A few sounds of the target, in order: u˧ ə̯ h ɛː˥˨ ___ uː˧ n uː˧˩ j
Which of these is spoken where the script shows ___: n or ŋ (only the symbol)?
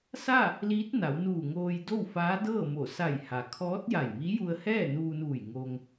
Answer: n